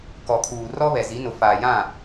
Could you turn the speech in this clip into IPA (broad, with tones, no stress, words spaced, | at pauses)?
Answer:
kɔ˨kʰuː˨ rɔ˦βɛ˨zi˨˦nʊ˨ faː˨jã˦˨